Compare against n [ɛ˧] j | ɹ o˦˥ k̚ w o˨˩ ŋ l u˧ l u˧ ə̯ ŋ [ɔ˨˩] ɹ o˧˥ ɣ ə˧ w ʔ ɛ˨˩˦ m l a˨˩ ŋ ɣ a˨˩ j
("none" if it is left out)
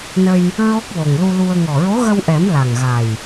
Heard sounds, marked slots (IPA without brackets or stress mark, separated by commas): ə˧, ɔ˨˩